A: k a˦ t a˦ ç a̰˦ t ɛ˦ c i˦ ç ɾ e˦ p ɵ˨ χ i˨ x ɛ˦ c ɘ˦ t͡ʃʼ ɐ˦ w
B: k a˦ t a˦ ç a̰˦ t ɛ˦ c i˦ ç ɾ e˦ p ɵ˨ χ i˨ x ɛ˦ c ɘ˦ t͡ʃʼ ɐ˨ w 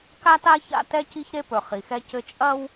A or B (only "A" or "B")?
A